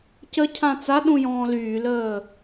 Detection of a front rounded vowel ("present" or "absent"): present